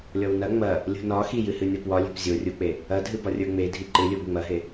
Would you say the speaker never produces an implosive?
yes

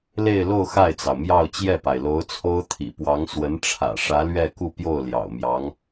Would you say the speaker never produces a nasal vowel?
yes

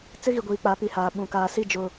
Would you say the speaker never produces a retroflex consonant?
yes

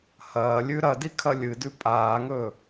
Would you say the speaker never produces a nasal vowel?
yes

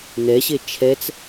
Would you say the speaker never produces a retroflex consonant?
yes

